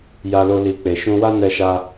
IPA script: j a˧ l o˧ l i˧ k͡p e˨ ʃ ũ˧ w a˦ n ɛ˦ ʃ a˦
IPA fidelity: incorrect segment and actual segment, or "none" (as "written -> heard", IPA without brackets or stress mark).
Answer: none